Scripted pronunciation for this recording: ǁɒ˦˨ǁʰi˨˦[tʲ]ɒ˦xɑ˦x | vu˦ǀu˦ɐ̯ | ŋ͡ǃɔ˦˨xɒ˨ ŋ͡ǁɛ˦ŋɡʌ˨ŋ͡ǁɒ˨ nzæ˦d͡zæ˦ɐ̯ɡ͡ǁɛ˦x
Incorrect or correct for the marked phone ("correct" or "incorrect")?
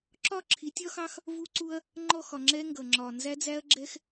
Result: correct